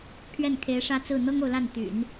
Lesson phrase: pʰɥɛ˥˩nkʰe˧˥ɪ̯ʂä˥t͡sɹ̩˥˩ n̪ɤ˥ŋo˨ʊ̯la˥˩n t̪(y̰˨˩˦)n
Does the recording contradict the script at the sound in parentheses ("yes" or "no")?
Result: no